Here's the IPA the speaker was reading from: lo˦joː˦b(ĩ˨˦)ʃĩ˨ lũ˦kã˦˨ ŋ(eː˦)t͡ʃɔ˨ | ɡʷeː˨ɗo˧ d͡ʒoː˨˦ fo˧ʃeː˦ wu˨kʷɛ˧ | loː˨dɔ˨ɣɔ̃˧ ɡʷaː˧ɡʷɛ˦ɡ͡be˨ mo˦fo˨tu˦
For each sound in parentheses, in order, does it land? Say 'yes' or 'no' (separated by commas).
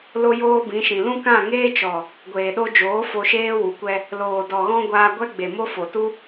yes, yes